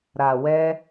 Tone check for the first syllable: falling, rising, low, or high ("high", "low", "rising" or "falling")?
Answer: low